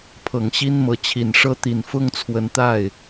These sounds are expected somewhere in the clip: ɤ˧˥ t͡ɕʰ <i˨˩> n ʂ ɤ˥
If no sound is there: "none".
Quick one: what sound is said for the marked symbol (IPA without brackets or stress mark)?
i˨˩